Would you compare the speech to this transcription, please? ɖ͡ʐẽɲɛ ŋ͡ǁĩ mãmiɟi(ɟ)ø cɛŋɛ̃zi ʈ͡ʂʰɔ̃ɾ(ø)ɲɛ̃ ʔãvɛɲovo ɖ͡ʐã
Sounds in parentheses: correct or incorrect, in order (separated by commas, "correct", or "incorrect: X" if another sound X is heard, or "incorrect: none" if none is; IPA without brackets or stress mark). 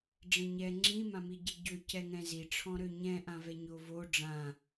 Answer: correct, correct